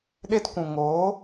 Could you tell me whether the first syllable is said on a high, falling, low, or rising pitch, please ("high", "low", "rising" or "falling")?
high